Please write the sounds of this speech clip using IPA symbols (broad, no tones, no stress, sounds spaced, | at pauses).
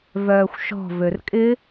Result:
v œː xʷ ʃ ɔ̤ v ø r kʼ ɪ